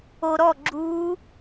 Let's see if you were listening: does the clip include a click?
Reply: yes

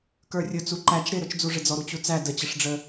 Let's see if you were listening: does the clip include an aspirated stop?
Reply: no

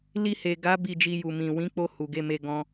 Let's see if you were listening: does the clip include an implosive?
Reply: no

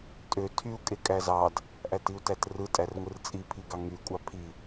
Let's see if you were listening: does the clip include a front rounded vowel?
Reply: yes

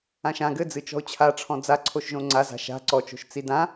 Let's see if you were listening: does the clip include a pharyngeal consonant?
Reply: no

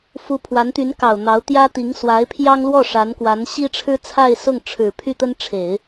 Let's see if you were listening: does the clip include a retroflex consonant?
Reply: yes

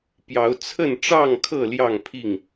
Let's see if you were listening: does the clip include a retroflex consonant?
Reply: yes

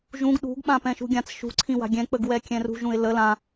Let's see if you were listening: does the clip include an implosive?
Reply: yes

